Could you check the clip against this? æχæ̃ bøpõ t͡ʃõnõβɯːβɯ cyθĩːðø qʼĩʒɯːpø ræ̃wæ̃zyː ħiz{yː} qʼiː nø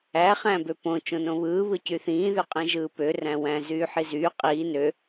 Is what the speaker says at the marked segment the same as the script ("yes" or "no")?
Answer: yes